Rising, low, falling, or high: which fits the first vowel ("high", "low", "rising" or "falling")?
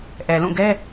low